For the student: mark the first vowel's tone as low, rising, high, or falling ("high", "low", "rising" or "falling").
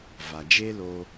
low